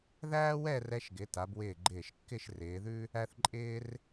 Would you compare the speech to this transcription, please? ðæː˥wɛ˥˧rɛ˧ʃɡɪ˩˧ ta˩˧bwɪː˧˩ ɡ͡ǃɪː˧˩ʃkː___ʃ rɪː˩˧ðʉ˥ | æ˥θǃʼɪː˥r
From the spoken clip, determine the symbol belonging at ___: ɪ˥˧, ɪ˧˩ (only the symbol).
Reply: ɪ˥˧